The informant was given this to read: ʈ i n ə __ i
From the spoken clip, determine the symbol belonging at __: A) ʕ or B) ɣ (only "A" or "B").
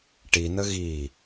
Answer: B